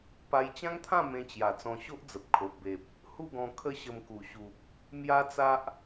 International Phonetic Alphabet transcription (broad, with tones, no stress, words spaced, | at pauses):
pa˧jt͡ɕã˦ŋt̪ʰã˥˧ mẽ˧t͡ɕja˨˩ t͡sɔ̃˧ɕo˦ʔd͡zə˨p̚ kʰo˨ʔbe˨p̚ | hu˥˧ɡɔ̃˧ kʰə˦ɕə˧mku˨˩ɕu˨p̚ | mja˦t͡sa˦ʔ